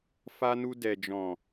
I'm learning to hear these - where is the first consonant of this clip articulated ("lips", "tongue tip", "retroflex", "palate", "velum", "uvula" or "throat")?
lips